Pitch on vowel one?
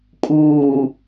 low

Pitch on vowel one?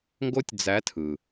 high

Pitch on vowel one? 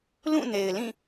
falling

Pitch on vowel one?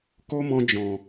high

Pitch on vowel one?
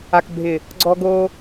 low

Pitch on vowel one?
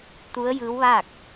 rising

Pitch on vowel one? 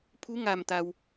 rising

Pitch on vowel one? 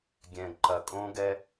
low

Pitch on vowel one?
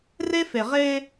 high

